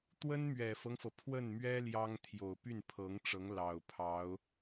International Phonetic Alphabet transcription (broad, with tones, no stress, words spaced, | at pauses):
t̪wə˥nmɥɛ˨˩fɤ˦ŋfɤ˩ pʰwə˥˩nmɥɛ˥ ljɑ˥ŋ t̪ʰjo˨˩ʊ̯py˥˩npʰɤ˧˥ŋʈ͡ʂɤ˧˥ŋ lɑ˨˩ʊ̯pʰɑ˧˥ʊ̯